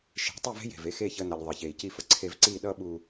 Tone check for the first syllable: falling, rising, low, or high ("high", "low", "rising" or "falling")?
rising